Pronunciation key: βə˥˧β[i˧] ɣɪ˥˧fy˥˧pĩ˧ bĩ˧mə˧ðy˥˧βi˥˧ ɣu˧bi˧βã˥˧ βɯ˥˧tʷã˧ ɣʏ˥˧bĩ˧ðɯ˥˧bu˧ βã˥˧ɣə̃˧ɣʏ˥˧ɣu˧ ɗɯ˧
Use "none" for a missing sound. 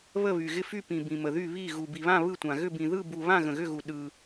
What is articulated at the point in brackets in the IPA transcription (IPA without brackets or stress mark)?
y˧